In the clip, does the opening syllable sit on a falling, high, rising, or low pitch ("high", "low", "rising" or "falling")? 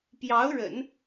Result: rising